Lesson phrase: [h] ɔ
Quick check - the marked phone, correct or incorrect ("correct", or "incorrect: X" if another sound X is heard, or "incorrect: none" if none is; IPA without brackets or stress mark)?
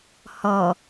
correct